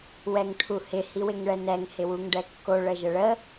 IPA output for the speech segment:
w ɛ ŋ ʈʰ u h ɪ h i w ɪ ŋ ɭ ɛ n ɛ ŋ h ɪ w u ŋ ɖ ɛ kː o ɭ ə ʒ ə ɭ ə

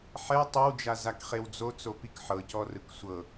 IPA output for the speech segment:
ħ ɛ tˤ i w d͡ʒ a z a k χ e w d͡z o t͡s o p i k ħ ɤ c ɔ r ɯ k sʷ ɤ

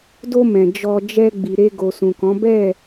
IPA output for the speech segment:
d o˧ m ɛ̃˨ d͡ʒ ɔ˧ d͡ʒ ɛ˧ ɡ͡b i˨ ɾ e˧ ɡ o˨ s ũ˨ k ɔ̃˨˦ b ɛ˦˨

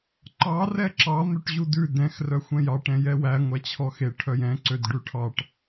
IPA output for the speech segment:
ǃ ɑ r ɛ ǁ ɑ n̪ ø ʈ ʑ u d ʉ d ɛ̃ x r œ xʷ ɛ̃ j ɑ ʈ ɛ̃ j ɛ w æ ŋʷ æ t͡ɕʰ ɔ x e ʈʰ œ j ɛ̃ ǀ ø d ɖ ʉ ʈʰ ɑ ʈ

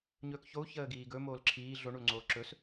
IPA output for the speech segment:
ɲ ɵː k ç o u̯ ç əː ɡ iː ɡ ɵ m oː l ǁʰ iː ɮ o ɳ u l ŋ͡ǀ oː ǁ ɵ s

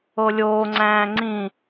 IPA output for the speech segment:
o lʲ oː ŋ͡ǀ æ̃ː ŋ͡ǀ ĩ

